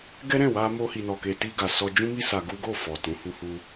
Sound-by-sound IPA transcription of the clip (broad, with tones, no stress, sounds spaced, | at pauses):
ɡ ɛ˦ ɾ ɛ̃˦˨ w a˧ m o˧ h i˨ n ɔ˨ k e˨ t i˧ ɡ a˨ s ɔ˧ d͡ʒ ũ˦ m i˦ s a˧ ɡ u˦ ɡ o˦˨ f ɔ˨ t ũ˨˦ h u˧ h u˧